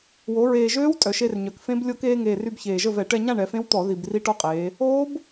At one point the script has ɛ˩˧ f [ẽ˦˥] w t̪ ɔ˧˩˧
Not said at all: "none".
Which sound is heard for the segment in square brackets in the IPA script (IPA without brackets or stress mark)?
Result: ẽ˦˥